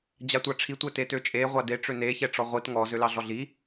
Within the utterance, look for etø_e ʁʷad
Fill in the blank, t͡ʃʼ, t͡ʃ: t͡ʃʼ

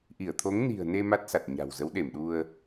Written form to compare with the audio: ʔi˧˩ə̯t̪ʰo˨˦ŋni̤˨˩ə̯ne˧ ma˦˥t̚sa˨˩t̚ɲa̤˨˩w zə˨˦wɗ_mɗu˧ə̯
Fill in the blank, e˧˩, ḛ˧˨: e˧˩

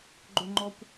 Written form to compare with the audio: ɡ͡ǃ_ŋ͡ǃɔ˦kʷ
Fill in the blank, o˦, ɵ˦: ɵ˦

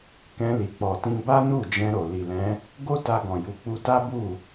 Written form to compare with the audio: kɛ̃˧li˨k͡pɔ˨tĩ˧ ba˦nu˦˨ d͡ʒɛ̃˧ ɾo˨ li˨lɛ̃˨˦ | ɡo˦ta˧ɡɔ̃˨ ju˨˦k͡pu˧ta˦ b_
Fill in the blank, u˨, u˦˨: u˦˨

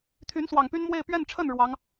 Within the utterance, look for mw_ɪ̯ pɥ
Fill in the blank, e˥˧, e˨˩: e˥˧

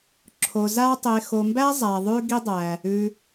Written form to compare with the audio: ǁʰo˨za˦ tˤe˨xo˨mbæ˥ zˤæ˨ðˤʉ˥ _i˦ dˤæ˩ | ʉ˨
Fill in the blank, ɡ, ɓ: ɡ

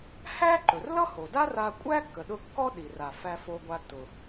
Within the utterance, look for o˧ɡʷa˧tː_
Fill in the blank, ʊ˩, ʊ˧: ʊ˩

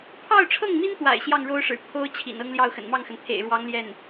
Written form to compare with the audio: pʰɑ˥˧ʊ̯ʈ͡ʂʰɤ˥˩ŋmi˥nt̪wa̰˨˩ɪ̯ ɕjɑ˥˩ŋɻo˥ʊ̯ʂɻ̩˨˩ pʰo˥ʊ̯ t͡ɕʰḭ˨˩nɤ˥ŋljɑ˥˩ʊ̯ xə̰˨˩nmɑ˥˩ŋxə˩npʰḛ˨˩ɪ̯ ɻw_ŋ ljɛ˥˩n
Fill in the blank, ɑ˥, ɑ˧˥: ɑ˧˥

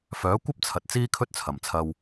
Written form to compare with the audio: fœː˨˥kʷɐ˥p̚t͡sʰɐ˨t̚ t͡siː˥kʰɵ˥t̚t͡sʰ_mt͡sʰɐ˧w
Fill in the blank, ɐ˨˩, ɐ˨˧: ɐ˨˩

